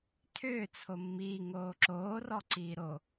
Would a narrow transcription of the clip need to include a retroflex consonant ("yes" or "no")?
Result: no